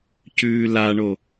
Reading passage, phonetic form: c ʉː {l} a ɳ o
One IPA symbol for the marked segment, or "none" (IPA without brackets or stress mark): l